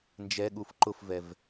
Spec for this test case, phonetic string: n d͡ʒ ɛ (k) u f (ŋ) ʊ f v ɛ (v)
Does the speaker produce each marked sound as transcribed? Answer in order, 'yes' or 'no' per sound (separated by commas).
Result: no, no, yes